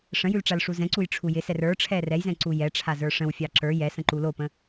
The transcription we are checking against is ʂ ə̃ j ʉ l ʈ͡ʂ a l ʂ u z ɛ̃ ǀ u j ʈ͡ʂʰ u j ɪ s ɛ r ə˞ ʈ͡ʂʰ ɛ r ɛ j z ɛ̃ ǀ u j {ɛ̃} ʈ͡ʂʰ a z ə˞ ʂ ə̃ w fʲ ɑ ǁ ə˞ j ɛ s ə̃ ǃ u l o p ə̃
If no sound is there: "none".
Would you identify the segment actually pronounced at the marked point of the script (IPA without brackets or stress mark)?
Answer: ɛ